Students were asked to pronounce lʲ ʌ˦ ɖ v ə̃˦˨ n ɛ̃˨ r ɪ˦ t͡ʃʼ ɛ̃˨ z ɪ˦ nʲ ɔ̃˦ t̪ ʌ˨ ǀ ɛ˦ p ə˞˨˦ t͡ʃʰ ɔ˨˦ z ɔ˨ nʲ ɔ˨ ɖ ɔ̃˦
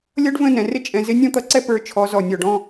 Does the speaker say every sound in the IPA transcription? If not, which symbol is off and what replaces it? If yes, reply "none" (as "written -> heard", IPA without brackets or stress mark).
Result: none